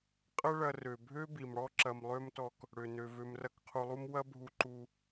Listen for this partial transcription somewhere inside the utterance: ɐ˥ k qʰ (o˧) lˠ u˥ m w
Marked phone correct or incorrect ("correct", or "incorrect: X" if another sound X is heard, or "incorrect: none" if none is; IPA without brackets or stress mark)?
incorrect: u˧